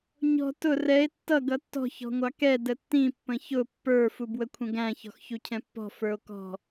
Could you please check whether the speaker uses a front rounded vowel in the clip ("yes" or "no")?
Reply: no